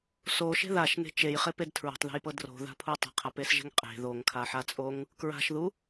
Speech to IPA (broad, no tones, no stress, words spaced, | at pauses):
soʃe̤ ðaʃne̤ t͡ʃejχeped tʰɹo̤tˤðe̤jpɤ dro̤ða̤pʰu tˤe̤qʰapesʒe̤ŋ qʼe̤ ðoŋkʰaħat͡sʼoŋ | kɹa̤ʃðu